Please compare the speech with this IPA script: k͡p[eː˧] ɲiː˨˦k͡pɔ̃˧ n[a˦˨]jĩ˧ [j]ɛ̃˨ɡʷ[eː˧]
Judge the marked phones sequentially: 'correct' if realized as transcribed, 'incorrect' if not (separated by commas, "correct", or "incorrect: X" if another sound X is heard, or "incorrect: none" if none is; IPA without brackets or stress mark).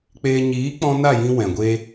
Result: correct, correct, incorrect: w, correct